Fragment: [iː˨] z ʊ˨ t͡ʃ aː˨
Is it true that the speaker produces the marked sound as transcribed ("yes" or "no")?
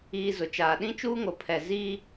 yes